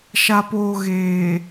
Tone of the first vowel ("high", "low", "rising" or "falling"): low